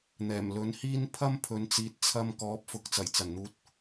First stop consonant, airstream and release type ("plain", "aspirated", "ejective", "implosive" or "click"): aspirated